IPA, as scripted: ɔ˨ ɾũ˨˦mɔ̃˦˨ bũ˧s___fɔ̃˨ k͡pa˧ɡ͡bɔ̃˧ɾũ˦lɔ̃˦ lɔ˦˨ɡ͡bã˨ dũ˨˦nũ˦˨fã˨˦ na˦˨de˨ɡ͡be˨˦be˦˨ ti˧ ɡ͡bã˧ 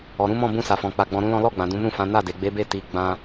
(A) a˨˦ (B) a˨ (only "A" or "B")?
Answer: B